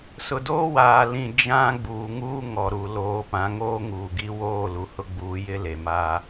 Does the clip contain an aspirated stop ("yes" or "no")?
no